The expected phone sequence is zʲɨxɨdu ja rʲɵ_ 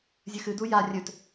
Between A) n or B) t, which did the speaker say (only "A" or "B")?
B